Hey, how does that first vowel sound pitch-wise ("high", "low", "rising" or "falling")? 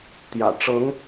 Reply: low